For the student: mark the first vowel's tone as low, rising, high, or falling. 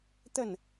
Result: falling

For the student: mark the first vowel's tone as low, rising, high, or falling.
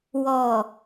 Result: low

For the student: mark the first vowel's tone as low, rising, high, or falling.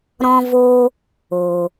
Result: high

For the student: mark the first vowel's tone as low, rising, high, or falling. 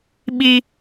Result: high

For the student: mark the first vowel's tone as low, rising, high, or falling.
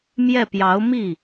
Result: falling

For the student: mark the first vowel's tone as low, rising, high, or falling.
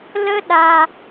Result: high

